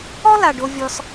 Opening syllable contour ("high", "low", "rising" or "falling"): high